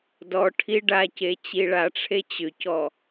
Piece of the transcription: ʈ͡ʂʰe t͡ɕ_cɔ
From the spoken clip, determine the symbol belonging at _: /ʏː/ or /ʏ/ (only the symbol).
ʏ